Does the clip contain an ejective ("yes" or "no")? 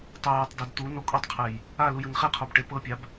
yes